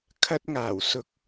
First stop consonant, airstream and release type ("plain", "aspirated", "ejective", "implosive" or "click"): aspirated